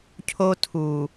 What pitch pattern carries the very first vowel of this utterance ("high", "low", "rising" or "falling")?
high